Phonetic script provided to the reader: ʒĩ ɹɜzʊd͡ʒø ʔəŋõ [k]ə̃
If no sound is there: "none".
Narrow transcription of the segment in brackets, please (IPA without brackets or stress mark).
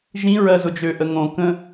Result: k